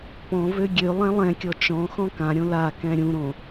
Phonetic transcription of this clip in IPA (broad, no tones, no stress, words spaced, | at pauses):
pɔ̃vø ɡʲø lˠɛ̃lˠɛ̃kʲɔ t͡ʃɔ̃xɔ̃ kãɾʲõ la kɛ̃ɾʲũɾõ